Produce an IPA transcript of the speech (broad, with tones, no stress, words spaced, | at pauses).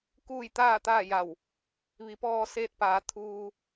kuː˥˨jt̪aː˥˨t̪aː˥˨ja˧˩w | ʋi˩˧pɔː˧seː˧t̚paː˩˧ t̪ʰuː˧